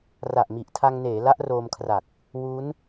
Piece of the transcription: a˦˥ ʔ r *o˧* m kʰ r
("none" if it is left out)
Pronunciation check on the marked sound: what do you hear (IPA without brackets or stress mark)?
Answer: oː˧